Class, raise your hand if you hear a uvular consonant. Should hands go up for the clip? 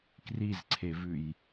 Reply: no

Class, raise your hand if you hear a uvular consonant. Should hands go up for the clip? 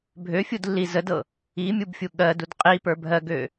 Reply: yes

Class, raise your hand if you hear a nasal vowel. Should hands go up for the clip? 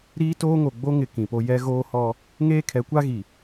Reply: yes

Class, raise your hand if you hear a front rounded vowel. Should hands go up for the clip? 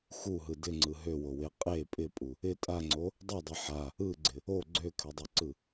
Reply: yes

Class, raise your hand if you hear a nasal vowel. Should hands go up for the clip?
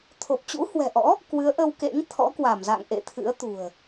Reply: no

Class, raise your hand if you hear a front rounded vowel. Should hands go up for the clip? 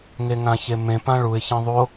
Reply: no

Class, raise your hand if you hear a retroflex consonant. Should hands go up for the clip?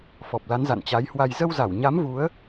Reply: no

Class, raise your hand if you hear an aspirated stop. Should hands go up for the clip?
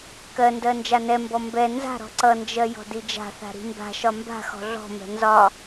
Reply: no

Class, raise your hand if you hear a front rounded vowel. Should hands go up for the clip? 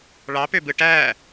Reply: yes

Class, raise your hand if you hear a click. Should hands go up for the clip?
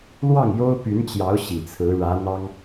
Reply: no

